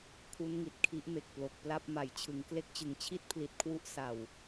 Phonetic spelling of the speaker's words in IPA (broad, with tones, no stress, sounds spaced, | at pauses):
kʰ u˦˥ n ŋ i˨˩ t̚ kʰ i˦˥ ʔ m e˨˩ k̚ p l o˨˩ k̚ p l a˥˩ p̚ m a˩˦ j t͡ɕʰ ɯ˩˦ ŋ k l e˦˥ k̚ t͡ɕ ɯ˩˦ ŋ t͡ɕʰ i˥˩ t̚ pʰ l i˨˩ t̚ kʰ w u˦˥ ʔ s a˨˩ w